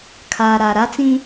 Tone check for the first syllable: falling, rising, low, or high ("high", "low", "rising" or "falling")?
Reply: low